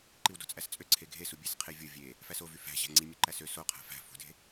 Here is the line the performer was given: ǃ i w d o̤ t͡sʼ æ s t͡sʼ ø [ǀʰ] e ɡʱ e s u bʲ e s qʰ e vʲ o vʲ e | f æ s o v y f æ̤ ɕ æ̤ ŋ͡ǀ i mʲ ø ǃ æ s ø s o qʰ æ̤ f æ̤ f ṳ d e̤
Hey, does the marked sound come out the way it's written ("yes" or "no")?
yes